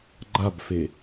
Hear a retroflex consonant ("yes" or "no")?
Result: no